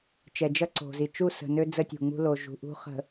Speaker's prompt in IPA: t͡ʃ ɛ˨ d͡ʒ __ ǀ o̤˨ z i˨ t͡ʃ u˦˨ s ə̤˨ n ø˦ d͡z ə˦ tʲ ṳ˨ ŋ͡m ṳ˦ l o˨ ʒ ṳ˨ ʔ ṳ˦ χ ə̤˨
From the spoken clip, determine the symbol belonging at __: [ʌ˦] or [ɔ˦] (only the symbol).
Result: ʌ˦